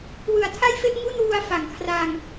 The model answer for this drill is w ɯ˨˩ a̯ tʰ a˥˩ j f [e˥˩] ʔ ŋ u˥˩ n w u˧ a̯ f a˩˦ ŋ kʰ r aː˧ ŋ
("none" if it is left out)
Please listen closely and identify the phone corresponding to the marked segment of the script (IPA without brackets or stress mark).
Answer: e˥˩